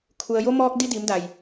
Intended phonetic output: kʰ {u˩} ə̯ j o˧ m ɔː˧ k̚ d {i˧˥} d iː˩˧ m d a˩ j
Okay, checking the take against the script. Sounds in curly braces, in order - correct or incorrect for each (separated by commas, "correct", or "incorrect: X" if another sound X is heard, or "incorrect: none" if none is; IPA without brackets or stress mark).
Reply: correct, incorrect: i˧